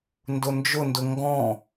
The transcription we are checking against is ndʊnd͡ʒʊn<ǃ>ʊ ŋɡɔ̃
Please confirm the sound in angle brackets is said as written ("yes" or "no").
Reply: no